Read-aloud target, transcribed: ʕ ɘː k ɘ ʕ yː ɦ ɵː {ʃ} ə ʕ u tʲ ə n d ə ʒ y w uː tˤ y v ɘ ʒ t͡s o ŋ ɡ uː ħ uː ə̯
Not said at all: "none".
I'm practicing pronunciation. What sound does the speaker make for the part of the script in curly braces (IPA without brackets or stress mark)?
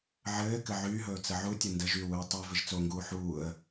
t͡s